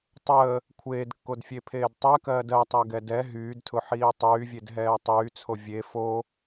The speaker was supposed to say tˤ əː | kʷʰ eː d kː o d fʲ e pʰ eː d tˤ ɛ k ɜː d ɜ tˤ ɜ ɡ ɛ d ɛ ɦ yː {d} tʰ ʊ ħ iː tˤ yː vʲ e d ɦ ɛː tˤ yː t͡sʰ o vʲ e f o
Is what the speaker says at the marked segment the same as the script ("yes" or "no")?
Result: yes